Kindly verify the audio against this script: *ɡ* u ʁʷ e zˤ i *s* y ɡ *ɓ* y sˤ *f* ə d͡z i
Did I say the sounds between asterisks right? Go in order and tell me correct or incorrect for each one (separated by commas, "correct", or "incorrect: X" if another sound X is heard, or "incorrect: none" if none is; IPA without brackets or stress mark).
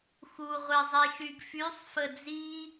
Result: incorrect: x, incorrect: ʃ, incorrect: f, correct